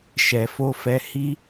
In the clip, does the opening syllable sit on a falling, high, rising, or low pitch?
low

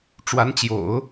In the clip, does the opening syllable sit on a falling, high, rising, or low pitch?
rising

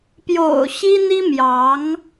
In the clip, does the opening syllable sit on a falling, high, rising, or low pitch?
low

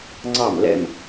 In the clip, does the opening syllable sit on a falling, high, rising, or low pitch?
falling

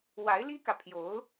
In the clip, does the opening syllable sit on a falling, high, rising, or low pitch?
rising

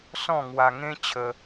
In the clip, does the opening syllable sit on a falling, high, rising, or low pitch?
falling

